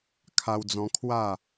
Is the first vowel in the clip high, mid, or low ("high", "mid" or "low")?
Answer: low